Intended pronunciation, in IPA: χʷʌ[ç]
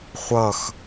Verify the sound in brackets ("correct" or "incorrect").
incorrect